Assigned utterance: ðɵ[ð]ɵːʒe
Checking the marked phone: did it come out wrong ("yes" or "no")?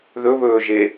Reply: yes